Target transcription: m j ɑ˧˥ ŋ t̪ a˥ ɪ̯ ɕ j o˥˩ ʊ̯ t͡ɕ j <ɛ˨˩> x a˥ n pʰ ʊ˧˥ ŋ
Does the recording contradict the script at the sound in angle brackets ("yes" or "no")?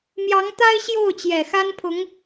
no